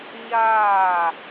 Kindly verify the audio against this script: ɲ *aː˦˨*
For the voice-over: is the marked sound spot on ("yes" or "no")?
yes